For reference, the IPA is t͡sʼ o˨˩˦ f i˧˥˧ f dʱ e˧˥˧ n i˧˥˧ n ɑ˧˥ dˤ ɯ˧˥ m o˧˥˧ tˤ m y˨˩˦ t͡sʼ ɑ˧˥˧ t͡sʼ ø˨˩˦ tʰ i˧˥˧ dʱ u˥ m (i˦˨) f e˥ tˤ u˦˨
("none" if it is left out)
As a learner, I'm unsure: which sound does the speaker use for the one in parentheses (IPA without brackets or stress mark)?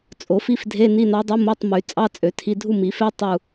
i˨˩˦